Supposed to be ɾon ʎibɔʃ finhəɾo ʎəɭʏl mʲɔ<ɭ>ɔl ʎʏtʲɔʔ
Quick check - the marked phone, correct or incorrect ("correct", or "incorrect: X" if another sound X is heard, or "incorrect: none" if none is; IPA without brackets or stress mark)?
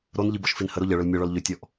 correct